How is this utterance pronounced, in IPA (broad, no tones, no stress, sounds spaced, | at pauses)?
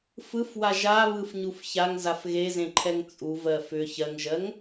f ɯ f w a ʒ a β ɯ f ɲ u f ç a ŋ z a f ɣ e z ẽ ǃʰ ɛ ŋ t͡sʼ u v ɜ f ʏ ç ɜ ŋ ʒ ɜ ŋ